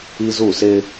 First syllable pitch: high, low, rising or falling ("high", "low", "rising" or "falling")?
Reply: high